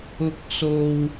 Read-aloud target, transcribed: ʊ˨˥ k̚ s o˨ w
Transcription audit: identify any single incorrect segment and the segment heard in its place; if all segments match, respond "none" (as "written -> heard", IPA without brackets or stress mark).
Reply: none